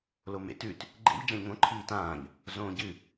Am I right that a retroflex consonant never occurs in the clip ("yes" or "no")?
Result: yes